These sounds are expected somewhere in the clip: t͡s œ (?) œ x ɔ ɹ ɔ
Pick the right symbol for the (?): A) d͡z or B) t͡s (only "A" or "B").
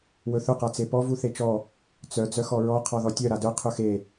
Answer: A